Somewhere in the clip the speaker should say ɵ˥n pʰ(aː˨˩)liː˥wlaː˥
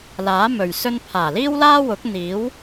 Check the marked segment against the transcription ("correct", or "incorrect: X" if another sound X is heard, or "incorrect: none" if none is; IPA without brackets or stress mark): correct